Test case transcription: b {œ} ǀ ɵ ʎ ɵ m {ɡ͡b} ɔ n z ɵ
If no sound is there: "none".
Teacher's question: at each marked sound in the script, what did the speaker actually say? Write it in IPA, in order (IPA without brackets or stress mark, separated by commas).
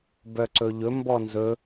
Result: œ, b